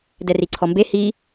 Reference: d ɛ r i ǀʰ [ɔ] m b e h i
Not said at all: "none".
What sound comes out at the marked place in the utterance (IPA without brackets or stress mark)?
ɔ